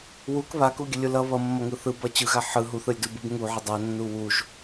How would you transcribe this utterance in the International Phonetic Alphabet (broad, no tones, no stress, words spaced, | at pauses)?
wuk βakuɡʲəlʲu lʌ βʌmːʌŋɯ θɯbʌ t͡ɕɯɣa ħɯ ɦuθɯlʲdubɯb ŋuʕə dˤanːu wuʒ